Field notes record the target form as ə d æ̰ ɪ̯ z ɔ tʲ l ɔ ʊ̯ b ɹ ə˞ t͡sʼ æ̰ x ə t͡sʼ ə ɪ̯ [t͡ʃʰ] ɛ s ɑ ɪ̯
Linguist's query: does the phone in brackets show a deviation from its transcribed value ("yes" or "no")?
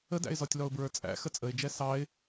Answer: yes